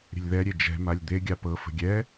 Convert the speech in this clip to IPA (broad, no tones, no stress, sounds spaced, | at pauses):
ɾʲ ə̤ lʲ ð ɛ ɾʲ e d͡ʒ ɛ̤ m a lʲ d̪ e ɡʲ a p ɤ f ə̤ ɡʲ ɛ